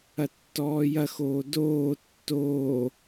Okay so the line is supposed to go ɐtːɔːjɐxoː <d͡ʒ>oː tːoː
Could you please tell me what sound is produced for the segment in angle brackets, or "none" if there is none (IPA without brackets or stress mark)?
d